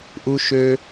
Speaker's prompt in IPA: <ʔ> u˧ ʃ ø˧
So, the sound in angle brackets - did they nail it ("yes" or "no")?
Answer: yes